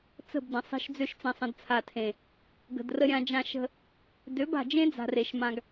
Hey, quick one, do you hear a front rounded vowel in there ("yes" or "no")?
yes